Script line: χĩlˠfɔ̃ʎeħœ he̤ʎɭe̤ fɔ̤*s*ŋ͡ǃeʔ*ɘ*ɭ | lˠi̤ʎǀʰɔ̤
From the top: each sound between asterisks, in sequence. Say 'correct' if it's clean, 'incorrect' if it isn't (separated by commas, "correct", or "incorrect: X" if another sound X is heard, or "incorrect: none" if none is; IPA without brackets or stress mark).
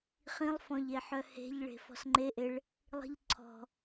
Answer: correct, incorrect: e